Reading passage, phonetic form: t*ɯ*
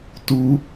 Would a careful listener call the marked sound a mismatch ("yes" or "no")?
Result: yes